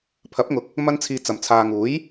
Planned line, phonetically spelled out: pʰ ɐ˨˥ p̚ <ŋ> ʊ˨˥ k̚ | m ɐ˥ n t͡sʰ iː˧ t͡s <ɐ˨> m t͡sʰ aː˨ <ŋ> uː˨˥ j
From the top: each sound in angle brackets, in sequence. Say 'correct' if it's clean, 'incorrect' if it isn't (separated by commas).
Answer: correct, correct, correct